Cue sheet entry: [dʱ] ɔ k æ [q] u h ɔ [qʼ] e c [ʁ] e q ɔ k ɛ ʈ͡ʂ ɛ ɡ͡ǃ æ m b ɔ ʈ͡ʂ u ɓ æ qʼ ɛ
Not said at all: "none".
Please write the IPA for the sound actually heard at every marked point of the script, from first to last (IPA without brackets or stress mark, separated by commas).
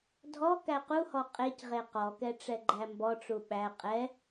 dʱ, q, qʼ, ʁ